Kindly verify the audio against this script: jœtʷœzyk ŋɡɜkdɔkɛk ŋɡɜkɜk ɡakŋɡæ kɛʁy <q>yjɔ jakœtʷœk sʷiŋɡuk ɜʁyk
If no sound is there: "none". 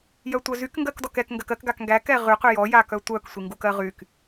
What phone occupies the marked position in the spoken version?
q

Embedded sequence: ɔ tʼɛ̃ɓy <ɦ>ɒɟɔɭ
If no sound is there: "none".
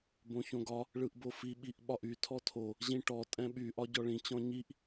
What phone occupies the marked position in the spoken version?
ʔ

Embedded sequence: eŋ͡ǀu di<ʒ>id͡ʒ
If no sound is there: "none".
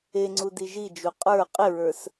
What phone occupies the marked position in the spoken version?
ʒ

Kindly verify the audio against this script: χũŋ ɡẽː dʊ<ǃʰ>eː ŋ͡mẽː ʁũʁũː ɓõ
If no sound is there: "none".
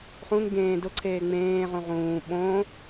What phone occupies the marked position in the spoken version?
ǀʰ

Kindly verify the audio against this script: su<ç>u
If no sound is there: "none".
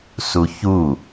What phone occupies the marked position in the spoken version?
ç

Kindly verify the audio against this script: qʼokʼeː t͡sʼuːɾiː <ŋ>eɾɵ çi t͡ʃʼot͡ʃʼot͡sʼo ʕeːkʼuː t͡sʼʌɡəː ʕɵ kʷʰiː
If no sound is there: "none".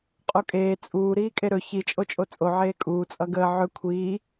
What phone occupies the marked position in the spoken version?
kʼ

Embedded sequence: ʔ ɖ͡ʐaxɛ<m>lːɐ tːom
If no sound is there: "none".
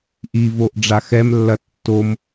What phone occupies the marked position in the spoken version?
m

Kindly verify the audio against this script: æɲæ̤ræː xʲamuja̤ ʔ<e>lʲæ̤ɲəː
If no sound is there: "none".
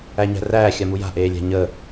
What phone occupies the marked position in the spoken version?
eː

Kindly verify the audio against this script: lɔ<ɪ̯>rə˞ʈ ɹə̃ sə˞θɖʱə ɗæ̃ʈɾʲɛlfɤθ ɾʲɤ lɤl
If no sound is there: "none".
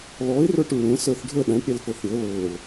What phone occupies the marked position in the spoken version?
ɪ̯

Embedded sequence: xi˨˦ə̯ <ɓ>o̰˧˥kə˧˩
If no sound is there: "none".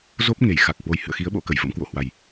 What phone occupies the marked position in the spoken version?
ɓ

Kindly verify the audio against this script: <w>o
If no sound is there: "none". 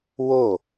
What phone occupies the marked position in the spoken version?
w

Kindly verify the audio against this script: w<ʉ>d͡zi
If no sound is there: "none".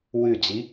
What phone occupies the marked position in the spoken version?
ʉ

